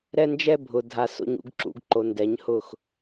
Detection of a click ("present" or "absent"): present